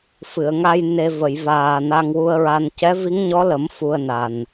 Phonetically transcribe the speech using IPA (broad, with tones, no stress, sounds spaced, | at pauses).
f ɨ˨˩˨ ə̯ ŋ a˧ j n e˧ v ə˨˩˨ j v aː˨˩ n a˧ ŋ w u˧ ə̯ ɹ a˧ n c ɛ˧˥ v i˧˥ ŋ ɲ ɔ˧˥ l ə˨˩˦ m f u˧ ə̯ n a˨˩ n